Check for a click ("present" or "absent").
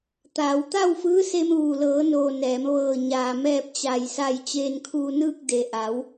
absent